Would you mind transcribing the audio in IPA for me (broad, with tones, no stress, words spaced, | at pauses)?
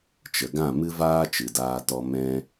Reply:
t͡ʃə˨ɡã˦˨mɨ˦ vaː˦t͡ʃɨ˨daː˧tɔ˧ mɛ̃˦